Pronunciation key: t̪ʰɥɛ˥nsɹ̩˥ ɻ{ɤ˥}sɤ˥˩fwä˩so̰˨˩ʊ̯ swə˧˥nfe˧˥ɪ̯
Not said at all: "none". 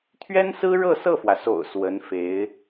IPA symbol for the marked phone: ɤ˥˧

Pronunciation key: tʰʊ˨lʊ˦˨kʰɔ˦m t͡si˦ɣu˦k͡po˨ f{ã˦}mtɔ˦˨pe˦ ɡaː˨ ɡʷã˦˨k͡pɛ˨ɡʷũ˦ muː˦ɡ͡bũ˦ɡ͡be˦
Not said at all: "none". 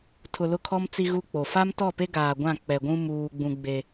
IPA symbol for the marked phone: a˦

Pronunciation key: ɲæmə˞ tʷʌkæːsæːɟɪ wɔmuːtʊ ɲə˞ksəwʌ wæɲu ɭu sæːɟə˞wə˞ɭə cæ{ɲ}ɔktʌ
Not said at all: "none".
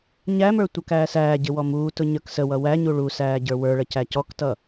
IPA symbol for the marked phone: c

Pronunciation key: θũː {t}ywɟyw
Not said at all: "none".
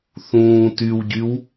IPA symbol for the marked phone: t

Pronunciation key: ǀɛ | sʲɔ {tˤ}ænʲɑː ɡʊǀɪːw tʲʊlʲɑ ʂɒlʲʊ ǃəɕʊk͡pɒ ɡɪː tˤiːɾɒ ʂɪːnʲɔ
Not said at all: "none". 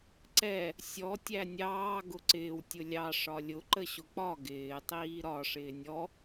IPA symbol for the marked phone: tʲ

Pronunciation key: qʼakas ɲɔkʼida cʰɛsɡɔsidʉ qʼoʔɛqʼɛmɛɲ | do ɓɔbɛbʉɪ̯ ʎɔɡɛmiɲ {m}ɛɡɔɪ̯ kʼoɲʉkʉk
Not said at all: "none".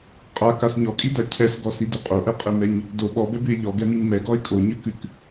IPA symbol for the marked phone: m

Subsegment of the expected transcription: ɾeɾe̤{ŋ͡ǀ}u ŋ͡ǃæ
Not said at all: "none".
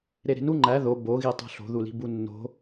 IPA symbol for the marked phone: n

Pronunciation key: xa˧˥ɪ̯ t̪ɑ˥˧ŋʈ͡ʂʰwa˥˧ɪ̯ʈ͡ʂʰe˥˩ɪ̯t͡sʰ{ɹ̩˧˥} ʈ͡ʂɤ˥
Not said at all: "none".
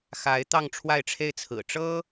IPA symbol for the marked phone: ɹ̩˨˩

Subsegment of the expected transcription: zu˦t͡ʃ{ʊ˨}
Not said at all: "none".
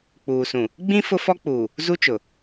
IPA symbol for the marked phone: ʊ˨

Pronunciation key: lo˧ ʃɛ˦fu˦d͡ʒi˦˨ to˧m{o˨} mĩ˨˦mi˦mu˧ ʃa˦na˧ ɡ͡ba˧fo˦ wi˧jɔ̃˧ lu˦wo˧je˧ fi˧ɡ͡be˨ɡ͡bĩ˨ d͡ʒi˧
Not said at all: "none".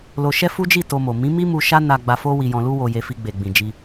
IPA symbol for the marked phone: o˨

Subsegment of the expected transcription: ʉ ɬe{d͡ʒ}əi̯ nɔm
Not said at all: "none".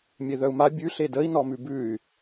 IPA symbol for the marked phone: d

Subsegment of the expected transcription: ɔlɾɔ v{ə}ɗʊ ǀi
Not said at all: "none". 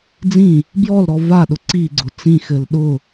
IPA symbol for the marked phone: a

